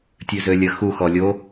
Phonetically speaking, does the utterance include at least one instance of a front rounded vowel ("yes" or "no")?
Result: yes